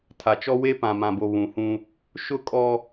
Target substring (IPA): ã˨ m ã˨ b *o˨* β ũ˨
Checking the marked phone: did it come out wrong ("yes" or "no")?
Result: no